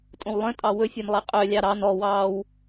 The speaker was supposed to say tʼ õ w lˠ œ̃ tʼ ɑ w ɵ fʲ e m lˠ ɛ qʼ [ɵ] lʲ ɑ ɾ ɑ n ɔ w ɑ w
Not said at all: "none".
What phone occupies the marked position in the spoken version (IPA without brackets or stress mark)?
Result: œ